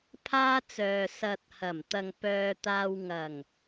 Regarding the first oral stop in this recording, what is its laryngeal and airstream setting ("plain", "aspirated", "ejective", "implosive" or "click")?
aspirated